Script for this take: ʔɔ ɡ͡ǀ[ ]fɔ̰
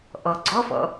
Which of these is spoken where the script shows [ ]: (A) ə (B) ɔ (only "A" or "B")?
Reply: B